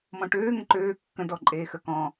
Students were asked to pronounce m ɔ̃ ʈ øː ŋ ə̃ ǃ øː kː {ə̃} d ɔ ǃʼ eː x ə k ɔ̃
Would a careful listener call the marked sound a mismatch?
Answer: no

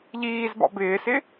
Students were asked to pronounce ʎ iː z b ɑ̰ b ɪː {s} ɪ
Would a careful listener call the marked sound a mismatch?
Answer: no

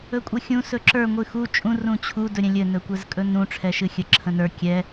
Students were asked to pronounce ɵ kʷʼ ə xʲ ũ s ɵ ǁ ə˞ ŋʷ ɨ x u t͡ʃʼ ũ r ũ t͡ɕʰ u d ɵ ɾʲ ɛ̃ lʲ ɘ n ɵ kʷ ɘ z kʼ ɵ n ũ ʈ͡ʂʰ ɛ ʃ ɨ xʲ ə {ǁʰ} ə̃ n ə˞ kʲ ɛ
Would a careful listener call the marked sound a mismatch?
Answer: no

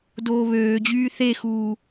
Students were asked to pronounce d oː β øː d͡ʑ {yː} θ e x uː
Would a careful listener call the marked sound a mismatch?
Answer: no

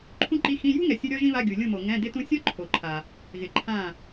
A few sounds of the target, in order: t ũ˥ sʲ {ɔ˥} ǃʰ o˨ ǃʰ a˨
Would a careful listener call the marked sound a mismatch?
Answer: no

